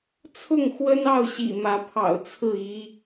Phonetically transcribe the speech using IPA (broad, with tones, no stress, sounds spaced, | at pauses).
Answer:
t͡sʰ ʊ˥˨ ŋ x w ə˦ n ɑ˥˨ ʊ̯ ɕ ḭ˨˩ m ä˨˦ pʰ ɑ̰˨˩ ʊ̯ t͡sʰ ɹ̩˥˨ i˦